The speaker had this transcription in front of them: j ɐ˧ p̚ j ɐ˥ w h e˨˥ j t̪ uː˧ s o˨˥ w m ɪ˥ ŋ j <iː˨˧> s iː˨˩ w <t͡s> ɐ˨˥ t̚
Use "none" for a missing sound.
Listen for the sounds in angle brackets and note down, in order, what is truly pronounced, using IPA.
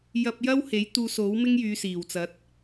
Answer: yː˨˧, t͡s

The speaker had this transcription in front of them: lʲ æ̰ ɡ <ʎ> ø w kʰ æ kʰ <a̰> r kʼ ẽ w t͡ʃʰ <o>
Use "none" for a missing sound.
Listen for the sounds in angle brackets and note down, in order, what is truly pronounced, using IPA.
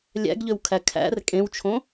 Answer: ʎ, æ̰, õ

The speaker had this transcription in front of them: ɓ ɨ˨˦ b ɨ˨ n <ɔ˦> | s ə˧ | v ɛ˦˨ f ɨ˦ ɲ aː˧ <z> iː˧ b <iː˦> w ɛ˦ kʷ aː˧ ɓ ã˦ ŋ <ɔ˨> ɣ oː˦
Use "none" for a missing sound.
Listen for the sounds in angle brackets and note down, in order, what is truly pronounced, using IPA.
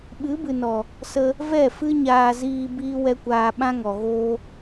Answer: ɔ˨, z, iː˦, ɔ˨

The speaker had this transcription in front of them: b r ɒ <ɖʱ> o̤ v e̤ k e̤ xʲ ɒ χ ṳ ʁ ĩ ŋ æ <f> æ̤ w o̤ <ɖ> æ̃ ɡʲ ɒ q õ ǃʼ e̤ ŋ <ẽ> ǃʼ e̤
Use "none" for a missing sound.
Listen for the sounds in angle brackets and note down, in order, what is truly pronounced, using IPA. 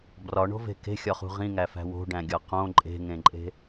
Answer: ɳ, f, ɖ, ẽ

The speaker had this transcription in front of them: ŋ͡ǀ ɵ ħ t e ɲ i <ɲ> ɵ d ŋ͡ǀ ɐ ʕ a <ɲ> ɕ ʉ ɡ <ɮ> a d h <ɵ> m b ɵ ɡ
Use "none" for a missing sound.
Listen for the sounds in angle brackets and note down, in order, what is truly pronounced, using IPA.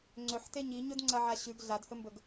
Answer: ɲ, none, ɮ, ɵ

